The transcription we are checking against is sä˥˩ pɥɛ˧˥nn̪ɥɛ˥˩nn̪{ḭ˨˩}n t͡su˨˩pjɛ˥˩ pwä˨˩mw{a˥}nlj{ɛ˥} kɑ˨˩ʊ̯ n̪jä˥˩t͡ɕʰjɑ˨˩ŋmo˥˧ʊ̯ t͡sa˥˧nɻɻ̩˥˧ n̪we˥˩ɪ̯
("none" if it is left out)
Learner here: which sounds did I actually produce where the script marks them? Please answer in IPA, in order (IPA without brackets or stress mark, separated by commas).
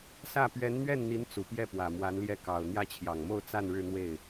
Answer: i˧˥, a˧˥, ɛ˥˩